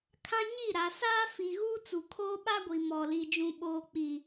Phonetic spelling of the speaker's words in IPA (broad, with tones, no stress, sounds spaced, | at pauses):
kʰ ã˦ ɲ i˦˨ ɾ a˨ s aː˦ f i˨ ɣ uː˦ t͡s u˨ kʰ oː˦ ɓ a˦ ɡʷ i˨ m ɔ˨ l i˨ d͡ʒ ũ˨ ɓ oː˨ k͡p i˨